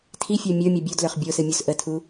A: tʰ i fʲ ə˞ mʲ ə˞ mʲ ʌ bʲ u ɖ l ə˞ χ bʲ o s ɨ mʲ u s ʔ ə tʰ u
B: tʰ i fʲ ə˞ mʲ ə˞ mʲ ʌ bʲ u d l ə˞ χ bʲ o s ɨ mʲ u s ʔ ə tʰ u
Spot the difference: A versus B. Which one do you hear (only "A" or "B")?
B